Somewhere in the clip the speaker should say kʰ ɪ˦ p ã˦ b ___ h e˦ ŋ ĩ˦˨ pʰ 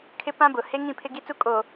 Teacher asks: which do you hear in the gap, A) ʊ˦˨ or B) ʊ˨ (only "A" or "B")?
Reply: B